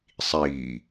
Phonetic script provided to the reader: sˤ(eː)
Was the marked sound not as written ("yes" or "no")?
yes